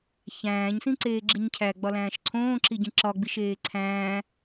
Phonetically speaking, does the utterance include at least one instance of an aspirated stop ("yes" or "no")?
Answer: yes